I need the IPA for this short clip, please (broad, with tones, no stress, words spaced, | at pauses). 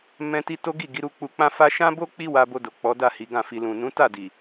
mɛ̃˧ ti˧ to˦ɡi˦˨ ɡi˨˦ɾu˧ k͡pu˧k͡pã˦ fa˦ ʃã˦bo˦ k͡pi˦wa˧bo˧ do˨k͡pɔ˨˦da˦˨ hi˨˦ɡã˦˨fi˧ lũ˨nũ˨˦ta˦˨di˨